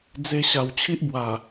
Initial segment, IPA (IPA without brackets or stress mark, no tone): d͡z